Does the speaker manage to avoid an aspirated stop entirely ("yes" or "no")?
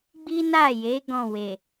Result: yes